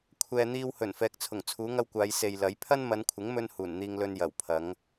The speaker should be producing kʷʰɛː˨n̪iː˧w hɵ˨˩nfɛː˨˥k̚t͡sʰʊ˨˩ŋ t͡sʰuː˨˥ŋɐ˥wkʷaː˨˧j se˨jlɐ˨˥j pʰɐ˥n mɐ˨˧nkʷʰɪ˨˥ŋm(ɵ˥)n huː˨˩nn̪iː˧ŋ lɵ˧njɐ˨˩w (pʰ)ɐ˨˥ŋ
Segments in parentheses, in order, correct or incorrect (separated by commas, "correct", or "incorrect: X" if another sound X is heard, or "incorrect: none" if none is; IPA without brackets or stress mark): incorrect: ɵ˧, correct